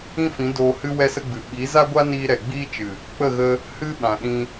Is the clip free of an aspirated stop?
yes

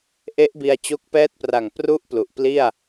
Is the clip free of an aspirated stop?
yes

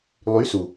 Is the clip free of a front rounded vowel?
no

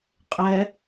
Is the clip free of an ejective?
no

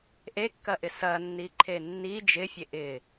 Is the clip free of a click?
no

